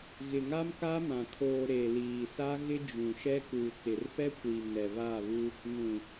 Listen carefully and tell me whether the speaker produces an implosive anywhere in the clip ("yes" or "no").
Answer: no